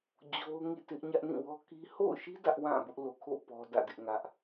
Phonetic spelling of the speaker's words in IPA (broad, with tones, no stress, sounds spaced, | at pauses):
d͡ʑ o˦ ʊ̯ ŋ ḭ˦˨ t ɪ˦ ʔ ɲ ä˦ ʔ n ĩ˦˨ w ɔ˦ k i˦ h o̰˦˨ ʊ̯ ʃ i˦ d ä˦ ʔ w ã˦˨ b ʊ˦ ʔ l o˨ kʰ o̰˦˨ p ɔ˦ d ä̰˦˨ d ɪ˦ ʔ ŋ ä˦ ʔ